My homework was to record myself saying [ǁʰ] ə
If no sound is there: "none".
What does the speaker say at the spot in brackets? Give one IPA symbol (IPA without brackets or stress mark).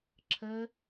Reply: ǁʰ